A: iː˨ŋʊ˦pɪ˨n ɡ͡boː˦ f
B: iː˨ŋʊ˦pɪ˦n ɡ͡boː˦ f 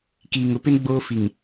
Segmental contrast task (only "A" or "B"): B